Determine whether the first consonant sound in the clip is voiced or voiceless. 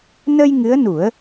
voiced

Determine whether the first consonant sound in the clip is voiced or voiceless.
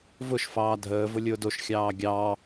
voiced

